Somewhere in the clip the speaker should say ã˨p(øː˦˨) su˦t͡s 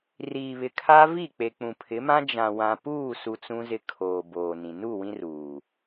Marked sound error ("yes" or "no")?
yes